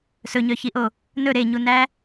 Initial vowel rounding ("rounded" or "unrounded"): rounded